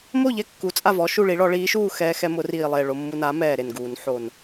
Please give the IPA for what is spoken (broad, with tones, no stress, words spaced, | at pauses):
mo˥˨ʎɛ˥˨kːu˩˥ t͡sʼa˥˨vɔ˩˥ʃu˥˨ɭi˩˥ ɭɔ˨˩˦ɭiː˩˥ʃuː˥˨ xɛː˧xɛ˧mʊ˨˩˦ riː˨˩lˠe˨˩ ɭo˧mːu˧na˩˥mɛː˨˩ ɾe˨˩nɡuː˨˩˦nħo˨˩n